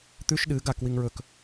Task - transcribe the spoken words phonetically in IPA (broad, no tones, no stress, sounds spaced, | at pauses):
t̪ ʉ ʃ ɗ ɨ ɡ a k w i ŋ ɹ ɵ k